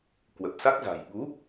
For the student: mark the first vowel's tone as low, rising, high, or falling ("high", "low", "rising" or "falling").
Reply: low